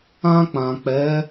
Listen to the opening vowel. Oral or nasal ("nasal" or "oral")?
nasal